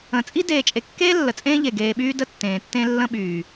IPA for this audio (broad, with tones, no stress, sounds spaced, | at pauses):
ə̃˨ t͡sʼ i˦ d eː˨ t͡ʃʼ e˨ kː eː˦ lː ə˨ t͡sʼ ẽː˦ ʎ e˨ ɡ eː˨ ɓ yː˦ d ə˦ tː ẽː˨ tː ẽ˦ lː ə̃˦ ɓ yː˨